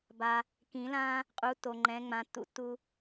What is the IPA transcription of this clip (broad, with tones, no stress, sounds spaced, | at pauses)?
b a˨ | k ĩ˨˩˦ l ã˦ | qʼ u˨˦ tː o˨ ŋ͡ǃ ɛ̃˨˦ ŋ͡m ã˨˦ tː ṵ˨˩˦ tː u˦